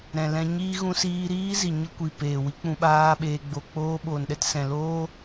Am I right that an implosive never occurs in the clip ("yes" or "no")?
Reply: no